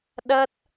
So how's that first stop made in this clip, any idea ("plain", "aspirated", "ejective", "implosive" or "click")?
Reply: implosive